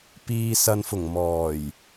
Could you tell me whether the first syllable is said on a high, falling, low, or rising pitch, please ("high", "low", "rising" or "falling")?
low